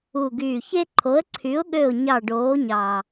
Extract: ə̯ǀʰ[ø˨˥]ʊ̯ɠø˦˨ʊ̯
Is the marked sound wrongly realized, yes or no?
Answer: yes